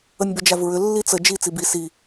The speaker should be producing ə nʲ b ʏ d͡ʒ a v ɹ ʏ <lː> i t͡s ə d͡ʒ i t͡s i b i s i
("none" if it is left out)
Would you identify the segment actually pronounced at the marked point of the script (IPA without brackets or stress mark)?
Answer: lː